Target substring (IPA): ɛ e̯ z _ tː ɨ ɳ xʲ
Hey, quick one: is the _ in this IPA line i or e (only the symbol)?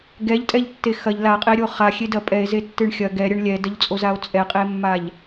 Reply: e